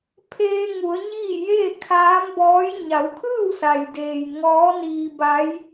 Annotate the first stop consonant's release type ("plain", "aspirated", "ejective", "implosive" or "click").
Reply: aspirated